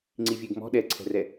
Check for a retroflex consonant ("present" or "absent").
absent